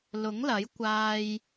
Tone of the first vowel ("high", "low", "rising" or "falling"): rising